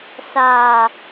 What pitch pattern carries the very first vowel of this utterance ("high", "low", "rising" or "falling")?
low